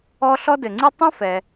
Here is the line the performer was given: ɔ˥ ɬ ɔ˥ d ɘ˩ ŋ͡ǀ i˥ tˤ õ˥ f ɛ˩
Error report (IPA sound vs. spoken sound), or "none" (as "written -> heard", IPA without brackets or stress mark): none